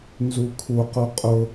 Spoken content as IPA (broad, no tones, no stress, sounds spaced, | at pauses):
n z u kʰ u q u qʼ ʊ